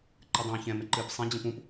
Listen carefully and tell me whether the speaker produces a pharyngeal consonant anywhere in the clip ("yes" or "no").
no